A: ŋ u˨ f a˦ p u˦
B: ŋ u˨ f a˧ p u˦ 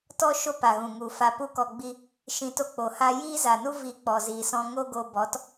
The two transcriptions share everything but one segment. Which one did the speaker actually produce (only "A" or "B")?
B